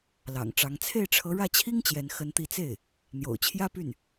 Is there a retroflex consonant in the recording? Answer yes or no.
yes